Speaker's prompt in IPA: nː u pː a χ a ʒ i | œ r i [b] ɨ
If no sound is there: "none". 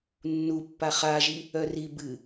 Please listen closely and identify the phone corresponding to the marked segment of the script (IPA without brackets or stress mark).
b